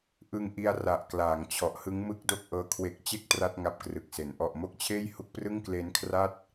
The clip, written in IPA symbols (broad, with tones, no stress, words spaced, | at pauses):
ʔɯ˧ŋʔi˧a̯ra˨˩ʔ klaː˩˦ŋ t͡ɕʰɔ˨˩ʔhɯ˦˥ŋ mɯ˥˩k̚do˥˩k̚ʔɤː˧ kʰwe˦˥k̚ t͡ɕe˦˥k̚ tra˥˩t̚ŋa˦˥p̚krɯ˨˩k̚se˩˦n ʔɔ˨˩ʔmo˦˥k̚t͡ɕʰeː˥˩j hu˦˥k̚prɯ˥˩ŋkleː˦˥nkʰra˥˩t̚